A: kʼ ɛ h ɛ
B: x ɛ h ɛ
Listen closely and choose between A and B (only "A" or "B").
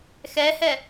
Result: B